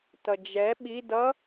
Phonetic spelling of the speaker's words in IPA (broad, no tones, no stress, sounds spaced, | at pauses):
t ʌ d͡ʒ ɛ ɓ i d ʌ